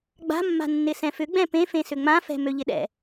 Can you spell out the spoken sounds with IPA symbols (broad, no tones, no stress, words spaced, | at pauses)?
ɡ͡ba̤mːa̤ nːɪsɛ̃fʏɡ͡bɛ̃ pẽfẽsʏ ŋ͡mãfɛ̤ møʎɪɗɛ̰